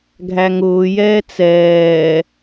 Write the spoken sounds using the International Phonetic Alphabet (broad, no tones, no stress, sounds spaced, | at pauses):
ɡʱ æ ŋ ʊː j ɛː t͡s ɛː